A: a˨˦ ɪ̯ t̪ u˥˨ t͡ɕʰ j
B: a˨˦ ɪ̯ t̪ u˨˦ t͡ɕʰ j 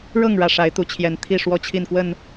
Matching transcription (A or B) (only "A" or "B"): B